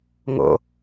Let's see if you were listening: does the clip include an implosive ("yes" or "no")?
no